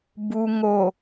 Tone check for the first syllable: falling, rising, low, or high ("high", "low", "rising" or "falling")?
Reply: low